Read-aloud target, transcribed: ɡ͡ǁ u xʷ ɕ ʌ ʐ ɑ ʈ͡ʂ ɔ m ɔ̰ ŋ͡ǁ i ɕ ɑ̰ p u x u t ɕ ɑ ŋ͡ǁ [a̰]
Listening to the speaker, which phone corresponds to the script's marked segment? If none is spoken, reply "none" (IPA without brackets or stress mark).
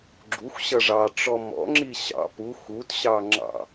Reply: ɑ̰